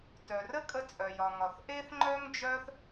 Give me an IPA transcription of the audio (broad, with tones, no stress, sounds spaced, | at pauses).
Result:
t œ˩ r ə˥ kʼ ə˥ t͡sʼ œ˩ j ɒ˩ ŋ ɒ˩ θ ʔ e˥ θ ŋ͡ǃ œ˥ ŋ d͡ʒ œ˥ θ